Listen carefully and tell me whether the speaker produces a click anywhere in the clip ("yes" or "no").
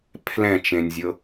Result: no